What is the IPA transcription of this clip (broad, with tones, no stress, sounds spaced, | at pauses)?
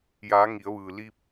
j aː˩˧ ŋ i˩˧ ə̯ ʋ ɯː˩ l i˧ p̚